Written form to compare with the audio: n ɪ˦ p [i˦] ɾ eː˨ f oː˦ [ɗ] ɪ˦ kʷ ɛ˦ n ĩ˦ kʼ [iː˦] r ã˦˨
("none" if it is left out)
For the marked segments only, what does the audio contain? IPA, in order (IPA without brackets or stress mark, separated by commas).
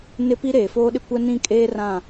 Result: i˦, ɗ, eː˦